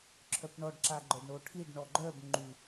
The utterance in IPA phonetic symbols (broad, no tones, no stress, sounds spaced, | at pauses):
ǁʰ œ p ɳ ɔ ɖ ǁ a ɡ͡ǃ œ ɖ ɳ o ʈʰ i ɖ ɳ ɔ ɡ͡ǃ œ b ŋ͡ǃ y